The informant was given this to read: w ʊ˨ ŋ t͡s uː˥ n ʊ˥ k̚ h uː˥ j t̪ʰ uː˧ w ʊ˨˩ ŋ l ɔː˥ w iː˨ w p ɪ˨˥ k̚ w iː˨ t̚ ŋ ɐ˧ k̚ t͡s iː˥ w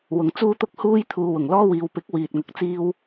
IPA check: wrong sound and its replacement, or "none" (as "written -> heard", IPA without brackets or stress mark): n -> t̪